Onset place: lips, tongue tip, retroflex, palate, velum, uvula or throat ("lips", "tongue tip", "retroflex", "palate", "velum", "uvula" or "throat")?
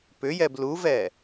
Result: lips